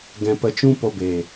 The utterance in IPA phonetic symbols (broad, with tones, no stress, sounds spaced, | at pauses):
ɡ ɛ̃˧ p ə˧ t͡ʃ ũ˦ p o˧ b e˨